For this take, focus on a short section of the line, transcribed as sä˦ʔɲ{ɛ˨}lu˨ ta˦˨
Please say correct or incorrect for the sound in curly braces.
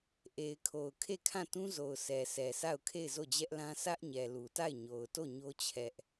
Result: correct